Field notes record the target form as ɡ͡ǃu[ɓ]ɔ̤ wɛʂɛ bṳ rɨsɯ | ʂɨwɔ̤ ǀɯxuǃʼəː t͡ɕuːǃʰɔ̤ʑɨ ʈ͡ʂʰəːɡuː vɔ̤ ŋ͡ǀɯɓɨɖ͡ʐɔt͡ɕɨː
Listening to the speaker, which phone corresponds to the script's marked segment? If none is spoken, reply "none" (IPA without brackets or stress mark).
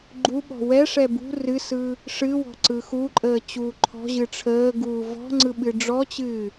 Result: ɓ